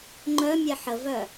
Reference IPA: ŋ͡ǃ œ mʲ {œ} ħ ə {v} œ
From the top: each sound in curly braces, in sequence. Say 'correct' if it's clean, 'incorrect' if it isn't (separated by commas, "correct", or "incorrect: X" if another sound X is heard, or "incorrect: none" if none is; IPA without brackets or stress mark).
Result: incorrect: ɛ, correct